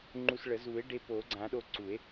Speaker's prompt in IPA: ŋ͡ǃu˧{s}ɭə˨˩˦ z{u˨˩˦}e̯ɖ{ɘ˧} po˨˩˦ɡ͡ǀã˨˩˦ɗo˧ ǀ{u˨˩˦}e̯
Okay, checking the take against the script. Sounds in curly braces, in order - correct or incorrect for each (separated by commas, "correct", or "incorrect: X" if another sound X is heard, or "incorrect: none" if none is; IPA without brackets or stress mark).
correct, correct, incorrect: e˧, correct